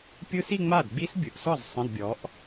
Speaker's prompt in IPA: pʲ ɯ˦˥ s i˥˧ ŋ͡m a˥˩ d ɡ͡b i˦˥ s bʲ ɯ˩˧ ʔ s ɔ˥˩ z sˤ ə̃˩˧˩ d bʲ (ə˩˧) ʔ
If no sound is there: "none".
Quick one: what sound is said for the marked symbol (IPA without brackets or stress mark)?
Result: ɔ˩˧